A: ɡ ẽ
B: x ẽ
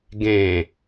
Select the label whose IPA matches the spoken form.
A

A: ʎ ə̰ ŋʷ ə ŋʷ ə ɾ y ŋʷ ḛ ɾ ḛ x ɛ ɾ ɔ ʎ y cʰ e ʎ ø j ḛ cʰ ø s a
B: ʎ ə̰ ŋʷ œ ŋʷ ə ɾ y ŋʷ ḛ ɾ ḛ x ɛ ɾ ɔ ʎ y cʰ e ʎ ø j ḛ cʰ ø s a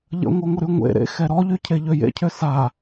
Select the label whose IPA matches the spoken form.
B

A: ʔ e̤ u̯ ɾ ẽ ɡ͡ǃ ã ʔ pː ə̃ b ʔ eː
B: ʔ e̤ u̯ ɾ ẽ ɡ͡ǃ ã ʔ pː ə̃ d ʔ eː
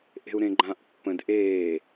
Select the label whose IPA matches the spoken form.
B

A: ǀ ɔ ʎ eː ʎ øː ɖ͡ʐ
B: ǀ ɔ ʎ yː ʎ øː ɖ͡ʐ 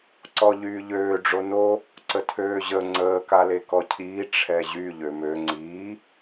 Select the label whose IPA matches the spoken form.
B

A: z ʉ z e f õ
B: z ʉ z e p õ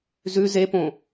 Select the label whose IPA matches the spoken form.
B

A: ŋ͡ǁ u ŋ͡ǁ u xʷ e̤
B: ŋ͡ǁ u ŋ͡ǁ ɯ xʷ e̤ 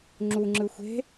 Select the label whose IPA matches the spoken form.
B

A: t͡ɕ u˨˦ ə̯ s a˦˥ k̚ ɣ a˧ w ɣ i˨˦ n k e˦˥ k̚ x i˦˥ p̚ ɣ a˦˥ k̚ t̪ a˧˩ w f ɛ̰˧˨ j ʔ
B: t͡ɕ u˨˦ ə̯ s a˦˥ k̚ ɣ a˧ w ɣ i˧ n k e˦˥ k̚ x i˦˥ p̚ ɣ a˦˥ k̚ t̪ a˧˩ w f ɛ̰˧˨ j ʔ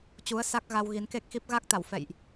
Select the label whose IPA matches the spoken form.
A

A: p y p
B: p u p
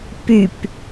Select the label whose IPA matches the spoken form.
A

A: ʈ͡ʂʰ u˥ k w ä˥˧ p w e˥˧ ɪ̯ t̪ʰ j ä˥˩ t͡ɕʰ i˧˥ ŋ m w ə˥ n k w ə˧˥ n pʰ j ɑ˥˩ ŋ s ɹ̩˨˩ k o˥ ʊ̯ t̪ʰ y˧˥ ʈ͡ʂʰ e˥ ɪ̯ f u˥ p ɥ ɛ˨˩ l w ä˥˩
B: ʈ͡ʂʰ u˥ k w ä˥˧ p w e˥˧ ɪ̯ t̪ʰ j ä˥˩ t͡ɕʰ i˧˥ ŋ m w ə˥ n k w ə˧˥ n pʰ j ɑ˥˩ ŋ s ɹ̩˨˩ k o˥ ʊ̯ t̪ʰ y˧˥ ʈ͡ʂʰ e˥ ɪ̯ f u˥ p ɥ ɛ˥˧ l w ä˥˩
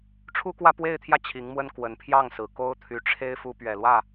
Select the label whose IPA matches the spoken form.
A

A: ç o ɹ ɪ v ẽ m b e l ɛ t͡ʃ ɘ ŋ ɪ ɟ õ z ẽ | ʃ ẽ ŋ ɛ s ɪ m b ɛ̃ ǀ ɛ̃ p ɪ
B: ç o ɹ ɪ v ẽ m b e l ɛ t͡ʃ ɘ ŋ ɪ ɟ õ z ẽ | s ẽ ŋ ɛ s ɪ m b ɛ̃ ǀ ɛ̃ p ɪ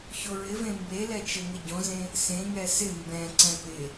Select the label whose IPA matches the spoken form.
B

